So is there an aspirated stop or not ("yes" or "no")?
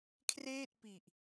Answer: yes